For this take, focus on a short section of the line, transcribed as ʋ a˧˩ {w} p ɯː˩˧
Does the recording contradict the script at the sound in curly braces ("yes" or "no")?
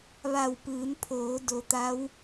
no